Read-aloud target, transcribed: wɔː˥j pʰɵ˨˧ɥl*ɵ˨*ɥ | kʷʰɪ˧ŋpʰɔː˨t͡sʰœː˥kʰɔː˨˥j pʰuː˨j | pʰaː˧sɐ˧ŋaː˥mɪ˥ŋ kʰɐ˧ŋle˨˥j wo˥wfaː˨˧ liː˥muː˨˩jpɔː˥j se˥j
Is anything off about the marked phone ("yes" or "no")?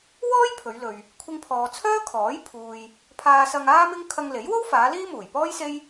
no